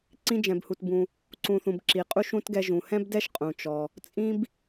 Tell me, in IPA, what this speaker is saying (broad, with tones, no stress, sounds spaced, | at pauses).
ǀ ĩ˥ d͡ʒ ɛ̃˨ b h u˨ t b ũ˨ | ǀ ũ˨ θ ũ˨ b ǁ i˩ qʼ u˥ ʃ ũ˥ t ɡ ɛ˦ ʒ ũ˩ h ɛ̃˥ b d ɛ˥ ʃ qʼ ũ˩ t͡ʃ ɔ˩ | t͡sʼ ĩ˥ b